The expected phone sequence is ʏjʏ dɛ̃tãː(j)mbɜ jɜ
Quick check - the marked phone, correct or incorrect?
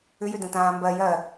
incorrect